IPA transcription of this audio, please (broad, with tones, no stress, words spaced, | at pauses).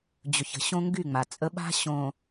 d͡ʑɵ˨çə̤˨ɕõ˦ŋɡy˦˨ ŋ͡ma˨t͡sʼə˦ ɓa̤˦ɕõ˨